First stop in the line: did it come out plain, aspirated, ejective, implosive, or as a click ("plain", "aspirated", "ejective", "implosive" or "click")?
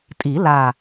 ejective